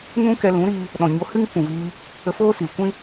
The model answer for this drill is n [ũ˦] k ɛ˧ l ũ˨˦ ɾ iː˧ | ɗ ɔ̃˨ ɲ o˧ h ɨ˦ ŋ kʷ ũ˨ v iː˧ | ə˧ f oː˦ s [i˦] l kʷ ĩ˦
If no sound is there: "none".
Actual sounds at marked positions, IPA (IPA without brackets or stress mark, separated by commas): ũ˦, i˨